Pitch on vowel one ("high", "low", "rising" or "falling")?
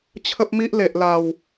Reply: high